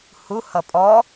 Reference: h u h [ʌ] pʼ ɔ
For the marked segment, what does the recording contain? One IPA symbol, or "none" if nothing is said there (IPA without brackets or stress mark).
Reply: ʌ